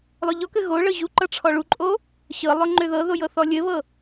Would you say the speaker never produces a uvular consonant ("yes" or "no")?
yes